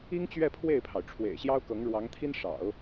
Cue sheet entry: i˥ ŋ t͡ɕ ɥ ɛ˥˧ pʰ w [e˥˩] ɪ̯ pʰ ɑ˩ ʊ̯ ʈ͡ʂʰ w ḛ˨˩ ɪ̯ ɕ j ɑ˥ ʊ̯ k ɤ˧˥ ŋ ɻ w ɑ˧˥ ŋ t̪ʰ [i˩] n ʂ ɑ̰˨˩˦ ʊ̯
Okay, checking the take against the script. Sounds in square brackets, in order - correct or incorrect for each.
correct, incorrect

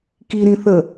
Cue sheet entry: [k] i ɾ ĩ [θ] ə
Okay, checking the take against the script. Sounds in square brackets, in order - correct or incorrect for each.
correct, correct

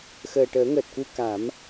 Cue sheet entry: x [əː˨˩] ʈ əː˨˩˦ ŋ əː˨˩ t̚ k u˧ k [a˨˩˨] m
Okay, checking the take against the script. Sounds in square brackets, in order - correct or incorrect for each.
correct, incorrect

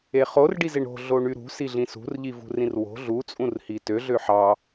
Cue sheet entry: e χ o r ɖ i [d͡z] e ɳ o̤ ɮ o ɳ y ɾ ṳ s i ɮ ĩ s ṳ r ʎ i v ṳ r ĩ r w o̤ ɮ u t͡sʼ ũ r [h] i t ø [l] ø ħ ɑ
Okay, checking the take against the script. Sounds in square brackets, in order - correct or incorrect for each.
incorrect, correct, incorrect

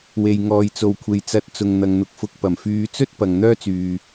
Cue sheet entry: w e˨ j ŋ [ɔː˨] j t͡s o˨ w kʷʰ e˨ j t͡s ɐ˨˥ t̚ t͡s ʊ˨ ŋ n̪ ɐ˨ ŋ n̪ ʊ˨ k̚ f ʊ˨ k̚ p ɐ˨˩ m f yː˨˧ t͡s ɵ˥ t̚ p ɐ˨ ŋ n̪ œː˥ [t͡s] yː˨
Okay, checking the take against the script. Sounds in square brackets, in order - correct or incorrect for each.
correct, correct

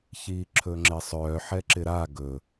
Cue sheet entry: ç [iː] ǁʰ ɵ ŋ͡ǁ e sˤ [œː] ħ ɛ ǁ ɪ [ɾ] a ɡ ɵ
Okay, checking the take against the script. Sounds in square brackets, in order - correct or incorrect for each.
correct, correct, correct

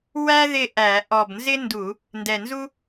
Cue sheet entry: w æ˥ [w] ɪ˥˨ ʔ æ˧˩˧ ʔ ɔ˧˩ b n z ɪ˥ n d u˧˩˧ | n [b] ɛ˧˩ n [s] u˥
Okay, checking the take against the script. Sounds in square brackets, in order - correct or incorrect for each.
incorrect, incorrect, incorrect

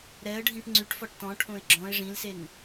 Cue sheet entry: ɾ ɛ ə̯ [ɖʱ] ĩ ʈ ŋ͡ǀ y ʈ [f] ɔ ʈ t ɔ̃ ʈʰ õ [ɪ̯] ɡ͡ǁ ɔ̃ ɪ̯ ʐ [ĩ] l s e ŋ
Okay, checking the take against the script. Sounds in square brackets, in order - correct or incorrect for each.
correct, correct, correct, correct

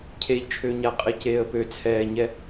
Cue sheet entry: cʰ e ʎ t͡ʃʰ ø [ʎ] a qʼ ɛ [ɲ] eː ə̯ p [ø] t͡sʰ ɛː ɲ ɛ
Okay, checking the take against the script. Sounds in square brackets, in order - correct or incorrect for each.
incorrect, incorrect, correct

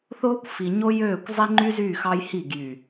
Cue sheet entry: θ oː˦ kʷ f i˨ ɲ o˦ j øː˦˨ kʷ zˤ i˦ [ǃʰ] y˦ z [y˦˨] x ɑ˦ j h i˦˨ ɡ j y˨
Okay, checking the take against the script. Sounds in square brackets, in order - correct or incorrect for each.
incorrect, correct

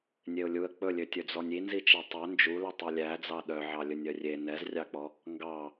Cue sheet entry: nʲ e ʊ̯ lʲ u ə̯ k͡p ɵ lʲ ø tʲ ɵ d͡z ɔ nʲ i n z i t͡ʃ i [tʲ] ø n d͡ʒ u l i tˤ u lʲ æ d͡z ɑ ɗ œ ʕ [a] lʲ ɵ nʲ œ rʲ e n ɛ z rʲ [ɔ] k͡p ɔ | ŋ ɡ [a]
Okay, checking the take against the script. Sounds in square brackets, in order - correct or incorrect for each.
incorrect, incorrect, incorrect, incorrect

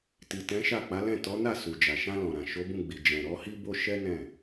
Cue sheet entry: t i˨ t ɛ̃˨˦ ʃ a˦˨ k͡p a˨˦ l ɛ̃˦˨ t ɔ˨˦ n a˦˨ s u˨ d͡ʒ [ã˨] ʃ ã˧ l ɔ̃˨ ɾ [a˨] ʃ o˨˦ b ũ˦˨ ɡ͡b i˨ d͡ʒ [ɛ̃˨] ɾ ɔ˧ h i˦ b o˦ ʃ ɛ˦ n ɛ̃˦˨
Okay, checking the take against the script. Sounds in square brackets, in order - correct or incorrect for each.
incorrect, incorrect, correct

